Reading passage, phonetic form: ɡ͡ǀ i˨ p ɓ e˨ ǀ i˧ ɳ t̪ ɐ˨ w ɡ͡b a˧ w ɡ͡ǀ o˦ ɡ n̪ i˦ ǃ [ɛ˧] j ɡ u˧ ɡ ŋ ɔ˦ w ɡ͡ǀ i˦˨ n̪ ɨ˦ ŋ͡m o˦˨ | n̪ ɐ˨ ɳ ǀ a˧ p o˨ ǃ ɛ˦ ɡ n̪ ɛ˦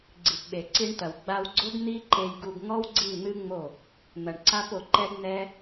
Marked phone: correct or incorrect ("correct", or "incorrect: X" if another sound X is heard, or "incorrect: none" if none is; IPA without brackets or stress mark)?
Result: incorrect: e˧